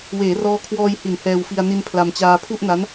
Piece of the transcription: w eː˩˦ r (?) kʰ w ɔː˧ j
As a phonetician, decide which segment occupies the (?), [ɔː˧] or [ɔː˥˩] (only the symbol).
ɔː˧